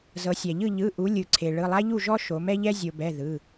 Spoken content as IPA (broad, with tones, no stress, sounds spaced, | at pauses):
z ɤ˩˧ sʲ a˩ ʎ ɯ˥˨ ʎ ɯ˩˧˩ ʔ u˩˧ lʲ ɯ˩ ǀʰ e˩ ɭ ɯ˩˧˩ lˠ a˥ ʎ u˥˨ ʒ ɔ˥ ʃ o˩˧ m ɛ˥ ʎ ɛ˥ zʲ o˩ b ɛ˩˧˩ ð ɯ˩˧˩